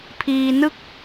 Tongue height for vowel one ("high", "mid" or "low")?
high